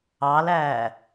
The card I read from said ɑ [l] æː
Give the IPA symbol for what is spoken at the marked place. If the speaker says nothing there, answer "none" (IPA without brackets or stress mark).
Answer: l